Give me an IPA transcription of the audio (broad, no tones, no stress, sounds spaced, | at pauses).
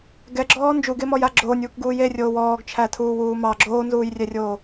ɡ ɛ ɡ͡ǁ ɔː n d͡ʒ u ɡ e m ɔ j a ɡ͡ǁ oː nʲ uː k ɡ uː j e rʲ oː w ɔː ɡ t͡ʃʰ æ tʰ uː w uː m ɑ ɡ͡ǁ oː n z uː j rʲ ɛ rʲ oː